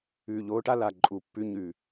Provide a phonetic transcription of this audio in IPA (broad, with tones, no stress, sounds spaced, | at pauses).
ʉː˨˩ ʎ oː˨˦ ʈ a˦ l a˨˩ ǃʼ u˨˩ pː ʉ˨˦ ɲ ʉ˨˩